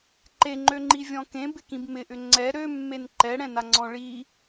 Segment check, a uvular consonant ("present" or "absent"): absent